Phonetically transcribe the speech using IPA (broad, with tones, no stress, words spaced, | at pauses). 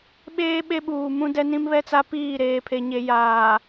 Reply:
ɓeː˦ ɓe˦ɓuː˨mũ˦ dɛ˦nĩ˦mβɛ˦t͡sa˦ piː˦˨ɾeː˨pʰe˨ɲe˨ jaː˨